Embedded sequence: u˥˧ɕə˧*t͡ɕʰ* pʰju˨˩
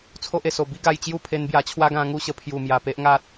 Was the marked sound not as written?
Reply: yes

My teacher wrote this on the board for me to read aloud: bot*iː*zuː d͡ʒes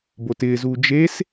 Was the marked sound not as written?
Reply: yes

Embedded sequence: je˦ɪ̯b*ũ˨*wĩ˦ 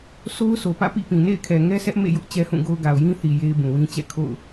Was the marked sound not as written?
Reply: no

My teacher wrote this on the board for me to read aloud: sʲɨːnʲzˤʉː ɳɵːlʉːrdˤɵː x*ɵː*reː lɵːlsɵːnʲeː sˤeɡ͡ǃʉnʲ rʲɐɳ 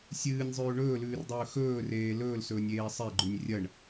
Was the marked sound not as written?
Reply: no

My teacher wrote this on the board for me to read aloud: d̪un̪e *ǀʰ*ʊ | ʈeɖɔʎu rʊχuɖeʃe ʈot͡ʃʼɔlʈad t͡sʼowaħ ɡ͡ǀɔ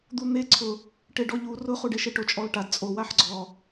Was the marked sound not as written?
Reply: no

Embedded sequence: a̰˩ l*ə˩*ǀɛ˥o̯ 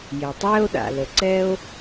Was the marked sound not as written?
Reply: no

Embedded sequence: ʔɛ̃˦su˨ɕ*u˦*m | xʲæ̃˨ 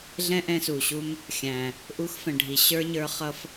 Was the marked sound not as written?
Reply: no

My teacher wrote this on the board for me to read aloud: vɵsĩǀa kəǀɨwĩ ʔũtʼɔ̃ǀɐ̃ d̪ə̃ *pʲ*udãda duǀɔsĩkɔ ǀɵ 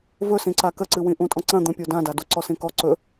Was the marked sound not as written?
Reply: no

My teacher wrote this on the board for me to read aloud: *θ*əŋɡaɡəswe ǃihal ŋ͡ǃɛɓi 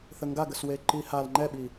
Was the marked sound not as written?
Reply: no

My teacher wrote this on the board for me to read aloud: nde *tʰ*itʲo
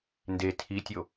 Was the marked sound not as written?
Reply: no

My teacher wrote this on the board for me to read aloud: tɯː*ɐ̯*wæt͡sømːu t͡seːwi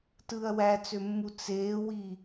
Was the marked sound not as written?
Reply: no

